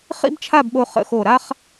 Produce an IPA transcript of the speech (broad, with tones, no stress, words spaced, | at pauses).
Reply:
χḭ˥bt͡ʃʰa˥˧bɓo˧ χə̰˧xo˧˩ɾa˥χ